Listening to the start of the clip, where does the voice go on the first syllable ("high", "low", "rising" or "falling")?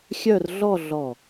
falling